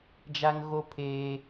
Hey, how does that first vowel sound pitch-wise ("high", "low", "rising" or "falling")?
high